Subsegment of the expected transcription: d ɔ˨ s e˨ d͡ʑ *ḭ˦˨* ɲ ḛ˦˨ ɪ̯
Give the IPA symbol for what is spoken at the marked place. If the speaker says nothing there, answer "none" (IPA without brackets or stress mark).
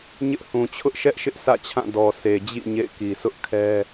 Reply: ḭ˦˨